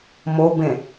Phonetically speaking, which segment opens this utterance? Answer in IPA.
m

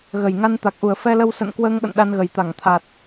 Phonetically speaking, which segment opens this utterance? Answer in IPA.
ɣ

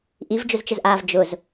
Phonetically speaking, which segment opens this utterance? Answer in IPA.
ʔ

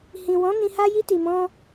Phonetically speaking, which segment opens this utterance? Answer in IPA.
h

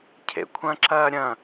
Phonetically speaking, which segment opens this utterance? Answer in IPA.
cʰ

